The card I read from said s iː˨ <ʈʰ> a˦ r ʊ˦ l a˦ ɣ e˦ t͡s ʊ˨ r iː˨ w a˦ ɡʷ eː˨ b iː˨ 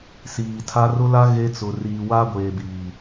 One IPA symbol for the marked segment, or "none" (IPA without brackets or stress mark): tʰ